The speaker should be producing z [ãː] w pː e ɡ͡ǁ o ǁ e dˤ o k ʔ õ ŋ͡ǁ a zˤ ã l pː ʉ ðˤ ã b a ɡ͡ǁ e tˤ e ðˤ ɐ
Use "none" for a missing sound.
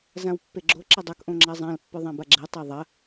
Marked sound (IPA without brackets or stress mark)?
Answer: ã